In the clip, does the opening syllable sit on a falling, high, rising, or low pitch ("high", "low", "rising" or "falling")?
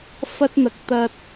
high